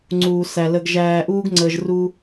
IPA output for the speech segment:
ŋ͡ǀ uː˨ s æ˨ l ə˨ ɡ ʒ æː˨ ʔ uː˦ ɡ ŋ͡ǀ əː˨ ʒ r u˦

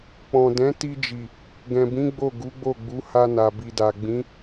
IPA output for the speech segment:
k͡p ɔ̃˨ d ɛ̃˨˦ t i˧ d͡ʒ i˨ | ɡ ɛ̃˨ b ĩ˨˦ ɡ͡b o˦˨ ɡ u˨˦ ɡ͡b o˦˨ ɡ͡b u˨˦ h a˧ n a˨ b i˨ d a˨ ɡ͡b ĩ˨˦

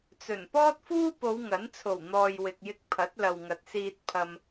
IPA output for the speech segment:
t͡s ɵ˨˩ n p ɔː˥ t̚ f uː˥ p o˨˧ w ŋ ɐ˨˥ n t͡sʰ o˨˩ w n̪ ɔː˨ j w ɪ˨ k̚ j ɪ˧ k̚ pʰ ɐ˨˥ t̚ l ɐ˨ w ŋ ɐ˨ t̚ s iː˧ t̚ pʰ ɐ˧ m

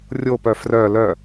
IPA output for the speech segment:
rʲ o p œ f r œ l œ

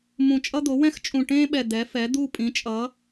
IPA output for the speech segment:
m ũ˨˩ t͡ʃʼ ʌ˥ d̪ o˩˥ w ɛ̃˥ x t͡ʃʼ ũ˨˩ ʈ ẽː˥ ɓ ɛ˨˩ d̪ ɛ˩˥ f ɛ˩˥ d̪ u˥˧ pʼ ĩ˩˥ t͡ʃʼ ʌ˩˥

